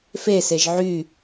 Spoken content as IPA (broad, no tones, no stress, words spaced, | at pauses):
feseʒ ʕy